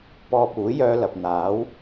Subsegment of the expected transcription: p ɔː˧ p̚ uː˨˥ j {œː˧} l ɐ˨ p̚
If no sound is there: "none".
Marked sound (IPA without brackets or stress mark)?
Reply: œː˧